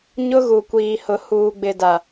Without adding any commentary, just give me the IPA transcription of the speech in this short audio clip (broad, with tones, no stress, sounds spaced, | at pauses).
ɲ ʊ˦ ɣ u˨ kʷ iː˨ h ʊ˨ h uː˨ ɡ͡b ɪ˨ d a˨